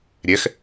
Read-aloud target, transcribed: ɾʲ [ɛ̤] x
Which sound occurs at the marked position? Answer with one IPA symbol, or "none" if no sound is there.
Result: ɛ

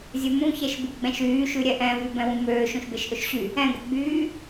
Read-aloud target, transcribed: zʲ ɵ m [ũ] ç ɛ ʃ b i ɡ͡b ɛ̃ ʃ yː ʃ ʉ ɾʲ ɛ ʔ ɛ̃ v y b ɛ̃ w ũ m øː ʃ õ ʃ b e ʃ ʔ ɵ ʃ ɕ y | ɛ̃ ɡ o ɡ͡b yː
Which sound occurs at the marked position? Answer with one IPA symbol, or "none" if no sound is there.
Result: ũ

